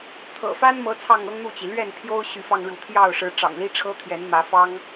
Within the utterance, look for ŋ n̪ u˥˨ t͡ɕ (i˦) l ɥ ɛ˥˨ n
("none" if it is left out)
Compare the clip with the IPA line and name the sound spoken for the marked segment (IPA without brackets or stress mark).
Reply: i˩